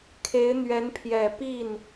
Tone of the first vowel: rising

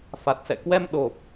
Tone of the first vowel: low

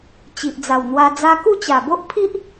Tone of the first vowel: low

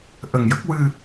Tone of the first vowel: low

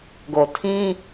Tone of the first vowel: low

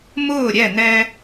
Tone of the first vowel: falling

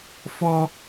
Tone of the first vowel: high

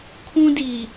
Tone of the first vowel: high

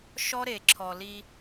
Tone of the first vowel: high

